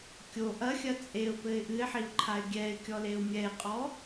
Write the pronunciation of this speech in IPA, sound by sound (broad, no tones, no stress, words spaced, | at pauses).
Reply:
kʲo ʔɐxʲɐ t͡sʼeʊ̯pɘɪ̯ ʔɨɪ̯ħiʊ̯ǃʰaɪ̯ ɡʲɛɪ̯kʲɔleʊ̯ mʲɛɪ̯qʼɔ